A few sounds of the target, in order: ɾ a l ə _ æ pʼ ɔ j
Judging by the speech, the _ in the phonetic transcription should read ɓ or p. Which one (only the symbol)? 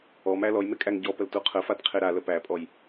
p